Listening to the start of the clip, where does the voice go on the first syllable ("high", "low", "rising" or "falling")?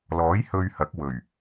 rising